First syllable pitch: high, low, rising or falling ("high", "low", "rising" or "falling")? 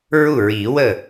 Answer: falling